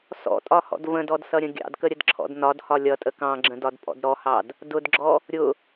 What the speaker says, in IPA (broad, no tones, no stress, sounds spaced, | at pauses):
s ɔ̰ tʼ ɒ h ɔ̰ d v ə̃ d ɔ d s ʌ ɾʲ ə̃ ɡʲ ɑ̰ d k ə ɾʲ ə d ǁʰ ɔ̰ d n ɒ d h ɒ lʲ ʌ tʼ ə k ɑ̃ ɡ͡ǁ ə̃ d ɒ d pʼ ɔ̰ d ɾ ɔ h ɑ d | d ʊ d ɡ͡ǁ ɔ | ɾʲ ʊ